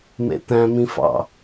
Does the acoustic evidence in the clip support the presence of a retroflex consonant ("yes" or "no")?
no